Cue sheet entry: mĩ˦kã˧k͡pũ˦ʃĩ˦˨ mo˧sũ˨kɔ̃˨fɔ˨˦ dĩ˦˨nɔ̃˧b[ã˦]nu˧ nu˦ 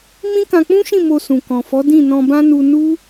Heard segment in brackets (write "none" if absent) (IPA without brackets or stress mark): ã˦